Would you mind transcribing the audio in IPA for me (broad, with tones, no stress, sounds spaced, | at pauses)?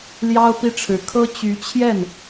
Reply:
l j ɑ˥ ʊ̯ p i˥ ʈ͡ʂʰ ɻ̩˧˥ kʰ ɤ˥ t͡ɕ y˧˥ t͡ɕʰ j ɛ˥˩ n